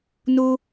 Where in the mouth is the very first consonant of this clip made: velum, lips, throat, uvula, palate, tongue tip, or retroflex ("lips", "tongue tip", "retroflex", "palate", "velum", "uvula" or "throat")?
tongue tip